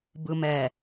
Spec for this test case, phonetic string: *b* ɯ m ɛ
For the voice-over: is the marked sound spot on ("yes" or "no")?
yes